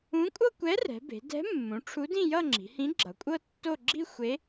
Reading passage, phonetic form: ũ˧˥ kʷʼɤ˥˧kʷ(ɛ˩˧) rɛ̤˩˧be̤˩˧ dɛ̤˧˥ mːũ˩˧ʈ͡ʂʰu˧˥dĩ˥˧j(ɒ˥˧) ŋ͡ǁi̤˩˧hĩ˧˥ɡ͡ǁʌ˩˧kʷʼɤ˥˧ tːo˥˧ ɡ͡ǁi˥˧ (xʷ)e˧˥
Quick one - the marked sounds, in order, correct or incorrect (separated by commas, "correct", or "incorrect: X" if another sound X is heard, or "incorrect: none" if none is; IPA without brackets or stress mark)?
incorrect: ɛ˧˥, incorrect: ʌ˥˧, correct